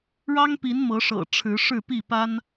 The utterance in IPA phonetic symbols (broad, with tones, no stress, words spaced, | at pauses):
ɻɑ˦ŋpi˨˦n mɤ˨˦ʂɤ̰˨˩ ʈ͡ʂʰɻ̩˨˦ ʂɻ̩˥˨pi˥˨pa˦n